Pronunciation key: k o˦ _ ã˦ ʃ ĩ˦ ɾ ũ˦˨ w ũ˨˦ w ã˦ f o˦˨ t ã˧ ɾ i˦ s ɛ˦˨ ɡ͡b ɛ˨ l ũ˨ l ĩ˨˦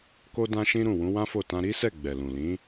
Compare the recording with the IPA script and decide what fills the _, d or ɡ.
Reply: d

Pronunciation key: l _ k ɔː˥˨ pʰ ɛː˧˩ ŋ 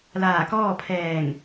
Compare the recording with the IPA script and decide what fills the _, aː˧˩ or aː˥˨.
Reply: aː˧˩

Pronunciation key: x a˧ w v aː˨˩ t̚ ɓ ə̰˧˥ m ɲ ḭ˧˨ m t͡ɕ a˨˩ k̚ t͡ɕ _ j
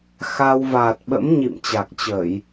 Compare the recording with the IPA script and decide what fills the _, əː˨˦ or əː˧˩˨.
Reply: əː˧˩˨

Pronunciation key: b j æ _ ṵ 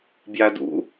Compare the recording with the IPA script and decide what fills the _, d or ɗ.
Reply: d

